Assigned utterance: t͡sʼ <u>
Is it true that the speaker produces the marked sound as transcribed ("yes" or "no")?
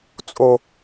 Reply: no